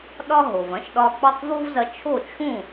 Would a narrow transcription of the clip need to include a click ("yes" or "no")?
no